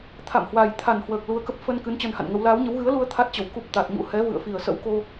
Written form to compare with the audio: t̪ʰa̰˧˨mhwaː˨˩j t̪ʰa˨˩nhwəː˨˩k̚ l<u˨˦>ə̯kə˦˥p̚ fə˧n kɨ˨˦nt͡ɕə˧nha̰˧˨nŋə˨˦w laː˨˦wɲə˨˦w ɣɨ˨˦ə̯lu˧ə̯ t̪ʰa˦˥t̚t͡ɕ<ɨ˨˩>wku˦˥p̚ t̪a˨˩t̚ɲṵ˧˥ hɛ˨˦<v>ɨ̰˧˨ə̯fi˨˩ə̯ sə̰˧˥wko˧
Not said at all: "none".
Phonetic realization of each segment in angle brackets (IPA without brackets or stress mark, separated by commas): u˨˦, ə˨˩, v